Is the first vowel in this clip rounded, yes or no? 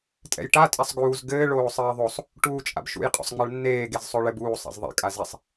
no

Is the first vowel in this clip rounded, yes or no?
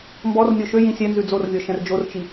yes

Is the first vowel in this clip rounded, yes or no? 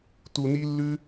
yes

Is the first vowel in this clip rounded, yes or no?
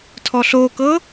yes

